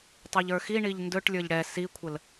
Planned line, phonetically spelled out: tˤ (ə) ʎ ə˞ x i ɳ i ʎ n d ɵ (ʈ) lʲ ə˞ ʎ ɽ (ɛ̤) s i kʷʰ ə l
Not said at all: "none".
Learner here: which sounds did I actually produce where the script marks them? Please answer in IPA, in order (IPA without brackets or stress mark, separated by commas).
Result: ɵ, ʈ, ɛ